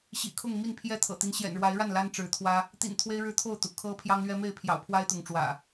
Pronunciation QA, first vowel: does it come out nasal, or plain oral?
oral